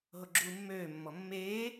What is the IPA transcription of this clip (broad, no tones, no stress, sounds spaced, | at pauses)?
ɦ o ɡ͡ǁ uː mː øː mː ɔ mː eː